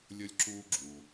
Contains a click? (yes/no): yes